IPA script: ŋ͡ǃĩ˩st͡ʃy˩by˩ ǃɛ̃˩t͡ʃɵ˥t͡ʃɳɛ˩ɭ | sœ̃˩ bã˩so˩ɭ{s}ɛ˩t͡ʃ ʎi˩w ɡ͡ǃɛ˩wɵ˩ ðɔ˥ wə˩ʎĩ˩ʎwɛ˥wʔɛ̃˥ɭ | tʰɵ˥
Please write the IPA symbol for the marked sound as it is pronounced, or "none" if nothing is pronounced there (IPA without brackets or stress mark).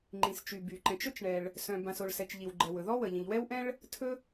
s